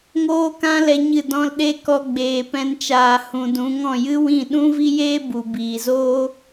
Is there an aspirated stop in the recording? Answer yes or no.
no